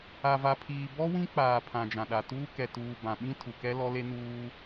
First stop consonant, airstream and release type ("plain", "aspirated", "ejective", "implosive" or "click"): aspirated